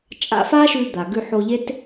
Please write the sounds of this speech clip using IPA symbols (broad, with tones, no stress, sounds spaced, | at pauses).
t͡ʃʼ a̰˧ f a˥ ʃ ʉ˧ d̪ a˩ ɡ ʉ˧ ħ o˧ ʎ e˥ t